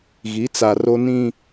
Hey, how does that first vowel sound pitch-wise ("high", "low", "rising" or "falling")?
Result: rising